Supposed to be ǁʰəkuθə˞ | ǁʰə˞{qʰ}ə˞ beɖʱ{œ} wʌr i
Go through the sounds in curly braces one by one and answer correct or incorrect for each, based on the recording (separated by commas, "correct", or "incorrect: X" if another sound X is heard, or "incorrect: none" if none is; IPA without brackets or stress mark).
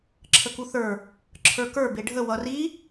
incorrect: k, incorrect: ə